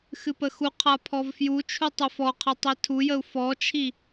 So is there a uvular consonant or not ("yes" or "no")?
yes